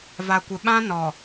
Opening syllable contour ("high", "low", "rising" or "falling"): low